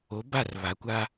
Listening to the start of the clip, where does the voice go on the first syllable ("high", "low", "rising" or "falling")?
rising